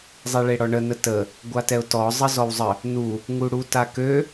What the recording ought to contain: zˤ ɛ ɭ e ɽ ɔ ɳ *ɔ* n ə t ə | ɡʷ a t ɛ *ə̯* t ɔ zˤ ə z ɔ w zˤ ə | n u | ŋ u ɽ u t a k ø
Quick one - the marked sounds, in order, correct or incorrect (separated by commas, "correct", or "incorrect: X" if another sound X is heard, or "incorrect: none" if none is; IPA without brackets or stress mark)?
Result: incorrect: ə, incorrect: ʊ̯